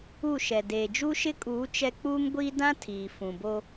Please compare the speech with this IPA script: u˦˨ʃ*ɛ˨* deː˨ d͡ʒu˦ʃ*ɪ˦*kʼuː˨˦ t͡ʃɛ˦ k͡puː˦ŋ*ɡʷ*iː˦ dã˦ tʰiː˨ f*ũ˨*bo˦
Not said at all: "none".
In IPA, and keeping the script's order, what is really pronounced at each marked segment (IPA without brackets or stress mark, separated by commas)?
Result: ɛ˨, ɪ˦, ɡʷ, ũ˨